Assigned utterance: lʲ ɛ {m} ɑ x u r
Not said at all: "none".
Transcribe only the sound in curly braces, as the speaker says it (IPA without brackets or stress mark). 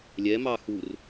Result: m